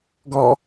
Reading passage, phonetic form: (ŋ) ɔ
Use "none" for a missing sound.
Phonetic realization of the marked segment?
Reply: ɡ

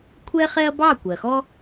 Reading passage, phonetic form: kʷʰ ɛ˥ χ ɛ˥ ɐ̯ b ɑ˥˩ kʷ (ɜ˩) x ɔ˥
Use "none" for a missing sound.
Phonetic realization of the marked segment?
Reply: ɜ˩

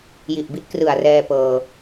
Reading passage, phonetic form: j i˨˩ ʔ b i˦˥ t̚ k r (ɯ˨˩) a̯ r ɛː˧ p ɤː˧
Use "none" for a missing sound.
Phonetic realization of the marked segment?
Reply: ɯ˨˩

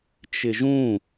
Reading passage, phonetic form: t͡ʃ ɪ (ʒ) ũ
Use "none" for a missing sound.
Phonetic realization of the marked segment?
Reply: ʒ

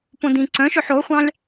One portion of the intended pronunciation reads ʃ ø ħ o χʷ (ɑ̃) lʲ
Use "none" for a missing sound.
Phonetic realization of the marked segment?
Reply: ɑ̃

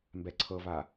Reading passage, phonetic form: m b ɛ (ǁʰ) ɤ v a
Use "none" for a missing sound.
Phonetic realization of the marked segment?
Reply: ǀʰ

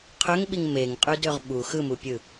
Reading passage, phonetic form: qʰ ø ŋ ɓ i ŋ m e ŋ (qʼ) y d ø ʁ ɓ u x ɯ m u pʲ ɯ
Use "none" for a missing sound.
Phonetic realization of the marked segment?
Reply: qʼ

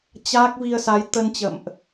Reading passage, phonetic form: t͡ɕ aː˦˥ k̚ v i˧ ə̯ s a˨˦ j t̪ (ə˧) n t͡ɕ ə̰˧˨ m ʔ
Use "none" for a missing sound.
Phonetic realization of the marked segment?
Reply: ə˧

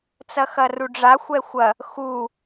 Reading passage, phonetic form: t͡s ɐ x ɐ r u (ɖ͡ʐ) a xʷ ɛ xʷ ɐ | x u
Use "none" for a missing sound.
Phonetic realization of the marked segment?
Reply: ɖ͡ʐ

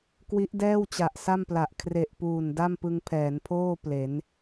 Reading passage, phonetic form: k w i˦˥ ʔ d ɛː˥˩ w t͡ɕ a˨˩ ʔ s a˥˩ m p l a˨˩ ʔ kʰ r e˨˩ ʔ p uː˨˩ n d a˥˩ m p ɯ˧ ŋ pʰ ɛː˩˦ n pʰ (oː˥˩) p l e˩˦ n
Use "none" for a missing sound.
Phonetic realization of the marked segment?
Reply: oː˥˩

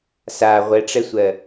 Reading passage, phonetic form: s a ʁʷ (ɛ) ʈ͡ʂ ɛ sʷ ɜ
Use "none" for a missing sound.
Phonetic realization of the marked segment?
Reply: ɛ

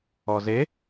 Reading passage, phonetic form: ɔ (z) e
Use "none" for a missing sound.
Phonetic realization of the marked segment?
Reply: z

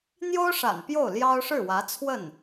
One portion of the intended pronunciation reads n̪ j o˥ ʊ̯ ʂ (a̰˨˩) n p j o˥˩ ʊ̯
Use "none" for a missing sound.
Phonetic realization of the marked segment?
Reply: a̰˨˩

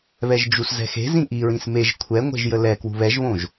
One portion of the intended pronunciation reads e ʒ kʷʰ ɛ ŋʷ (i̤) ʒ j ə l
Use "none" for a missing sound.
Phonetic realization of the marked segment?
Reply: e̤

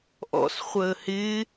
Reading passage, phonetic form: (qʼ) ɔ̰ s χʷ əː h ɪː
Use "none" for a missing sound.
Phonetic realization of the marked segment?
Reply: ʔ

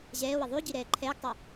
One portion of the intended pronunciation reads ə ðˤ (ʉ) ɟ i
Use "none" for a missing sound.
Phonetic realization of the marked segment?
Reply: ʉ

